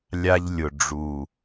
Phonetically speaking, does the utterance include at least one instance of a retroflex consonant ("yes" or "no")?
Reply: yes